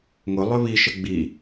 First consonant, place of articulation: velar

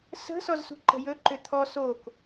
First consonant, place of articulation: alveolar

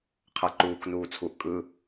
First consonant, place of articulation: uvular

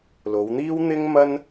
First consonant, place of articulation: alveolar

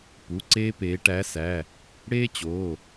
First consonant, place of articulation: labial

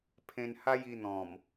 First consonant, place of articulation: labial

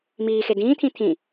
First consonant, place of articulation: labial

